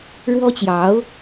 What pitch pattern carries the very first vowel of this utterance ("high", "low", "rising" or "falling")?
high